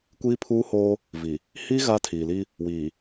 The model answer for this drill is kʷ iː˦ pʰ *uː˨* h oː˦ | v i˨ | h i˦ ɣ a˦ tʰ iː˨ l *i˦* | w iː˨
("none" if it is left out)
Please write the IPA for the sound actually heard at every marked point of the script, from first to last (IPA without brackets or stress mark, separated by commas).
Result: uː˦, i˦